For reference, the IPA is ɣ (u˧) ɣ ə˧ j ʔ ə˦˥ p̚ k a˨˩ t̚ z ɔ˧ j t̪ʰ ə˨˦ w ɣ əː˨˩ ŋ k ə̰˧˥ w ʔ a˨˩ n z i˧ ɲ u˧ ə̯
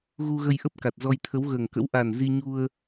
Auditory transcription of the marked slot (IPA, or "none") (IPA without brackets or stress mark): u˧